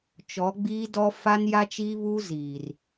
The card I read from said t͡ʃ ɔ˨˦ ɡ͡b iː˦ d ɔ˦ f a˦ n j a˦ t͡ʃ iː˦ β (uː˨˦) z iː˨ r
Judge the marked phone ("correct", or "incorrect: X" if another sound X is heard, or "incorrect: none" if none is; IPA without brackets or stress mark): incorrect: uː˦